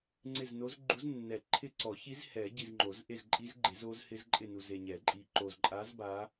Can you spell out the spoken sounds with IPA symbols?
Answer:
ŋ͡ǀɪ˦˨zno˧˥z ɡ͡ǃu˧˥znːɛ˨˩˦ ǃʰɪ˦˨ǀɔ˨˩˦çi˧˥z hɛ˨˩˦ɟi˨z ŋ͡ǃo˨˩˦z ʔe˦˨zǃʼi˧˥zɡ͡ǃe˨˩˦z o˧˥zhɪ˧˥z ǃʼɪ˦˨nu˨ ze˨ɲɛ˨˩˦ǃʼi˨ ǃo˨zǃʼa˧˥z ba˧˥

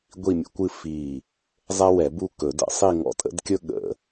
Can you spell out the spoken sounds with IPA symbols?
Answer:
ɡʷi˥˧mʲə̰˥kʷɨ˥˧ fi˧˩ | zˤɛ˥wɛ˨˩˦bu˥˧ kɵ˨˩˦də̰˨˩˦sˤi˥˧ ŋɔ̰˥˧tʼə̰˥dkʲɵ˥ ɠə̰˨˩˦

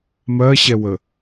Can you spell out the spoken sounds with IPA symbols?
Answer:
mɜɕɛwə

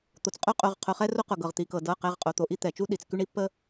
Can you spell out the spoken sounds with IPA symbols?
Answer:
t̪o˩t͡sqʼo˦qʼo˩˧˩ʁ qʰʊ˩˧˩χɛ˦ro˦qʊ˩ ɡɤ˩ʁ t̪i˩kɤ˩ dɤ˩˧˩qɛ˩˧˩ʁqʼo˩ t̪o˩ʔi˦t̪ɛ˩t͡ʃu˦ ɗi˩t͡sky˦ɳ i˦pːə˦

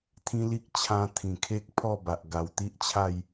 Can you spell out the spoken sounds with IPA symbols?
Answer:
t̪ʰĩ˦ li˦k̚ t͡ɕʰã˦ t̪ʰĩ˨˩kʰe˦k̚pʰɔ˥˧ba˨ʔ ɡa˨˩wt̪i˦ʔt͡ɕʰa˥˧j

